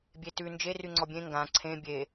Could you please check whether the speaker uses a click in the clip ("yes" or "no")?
yes